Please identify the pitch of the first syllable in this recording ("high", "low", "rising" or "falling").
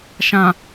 low